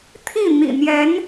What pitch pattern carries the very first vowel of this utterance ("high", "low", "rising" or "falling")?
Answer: falling